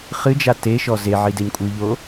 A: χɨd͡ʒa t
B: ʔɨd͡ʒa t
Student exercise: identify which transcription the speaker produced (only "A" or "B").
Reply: A